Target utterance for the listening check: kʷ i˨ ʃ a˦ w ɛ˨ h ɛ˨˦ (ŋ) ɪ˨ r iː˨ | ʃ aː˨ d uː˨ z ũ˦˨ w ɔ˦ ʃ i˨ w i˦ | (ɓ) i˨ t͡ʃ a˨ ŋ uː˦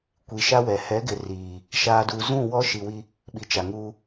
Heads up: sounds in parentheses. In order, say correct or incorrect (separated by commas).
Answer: incorrect, correct